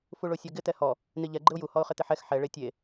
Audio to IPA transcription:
f u ɭ o sʲ ɔ ɡ ɪ t ɛ h ɔ | n i ʎ ɛ ɡ͡ǃ ɪ ʊ̯ j u h ɔ ʊ̯ χ ɪ t ɪ ħ ɛ x ħ ɛ ɭ e tʲ e

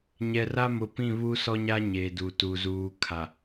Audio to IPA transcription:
ɲ ɛ˨ r a˦ m ʊ˨ p ĩ˦˨ β u˦ s ɔ˦ ɲ a˦ ɲ e˨ d u˨ t u˨ z uː˨ kʰ a˨

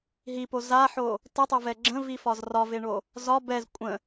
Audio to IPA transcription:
ɦ i p o z a ħ o | t ə tˤ ə v ɛ ɡ͡ǁ ə̃ v i f ɒ z r ɒ v e ɳ o | z ɒ b ɛ z kʷʼ ə̃

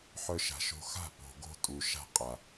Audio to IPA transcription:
ħ œ˧ ʃ a̤˨ ʃ o̤˧ x a̤˦˨ p o̤˨ ɡ o̤˧ tʼ u˨ ʃ a̤˧ qʼ a˨

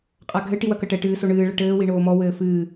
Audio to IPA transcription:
qʼ a ɡʱ ɘ ʈ i w ɐ k ɐ ʈ ɛ ʈ ɨː s o ɳ ɨː ɭ ɐ ʈ ɘː w i ɳ oː m ɔ w ɘː f ɨː

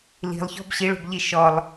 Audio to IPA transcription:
l i̤ lˠ ç ɔ̤ b ɕ i ɭ o̤ b ʎ i ʃ ɔ lˠ

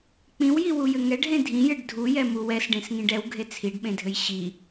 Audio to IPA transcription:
k͡p ĩ w j i w u j ɘ ŋ ɛ ɖ ɦ ẽ dʱ ĩ j ɘ ɖ dʱ u j ɛ m u w ɛ s ɖ ẽ s ŋ ĩ ɖ ɛ w ɡʱ e t͡sʰ i ɖ ɓ ẽ dʱ ɘ j ɕ i

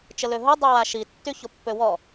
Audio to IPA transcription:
t͡ʃ ə l ø ɦ o dˤ i w a ʃ i tː y ç o pː ø w ɔ

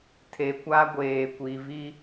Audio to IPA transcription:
tʰ e˨ kʷ a˦ ɡʷ eː˨ kʷ i˨ v i˦

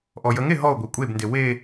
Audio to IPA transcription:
ʔ ɔ j ə ŋ e ɦ ɔ ʊ̯ ɡʷ e kʷʼ e b n d e w e

